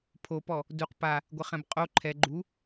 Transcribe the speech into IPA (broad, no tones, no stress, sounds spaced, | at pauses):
pʰ o p ɔ | d u q p a | ɡʷ ɪ χ ɛ̃ b qʼ o ǃʰ ɛ ɡ͡ǃ u